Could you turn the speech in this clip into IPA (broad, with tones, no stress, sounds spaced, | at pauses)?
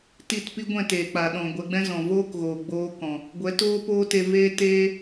t i˦˨ t p i˦ ɡʷ ɛ̃˦˨ t eː˨ k͡p a˨ ɗ ɔ̃˨ ɡʷ ɛ˧ ɡ͡b ɛ̃˦ z ɔ̃˨ v oː˦ k ɣ oː˨ ɡ͡b oː˧ k ɔ̃˨ | ɡʷ ɛ˨˦ t oː˦ p oː˦ t e˧ v eː˦ t eː˦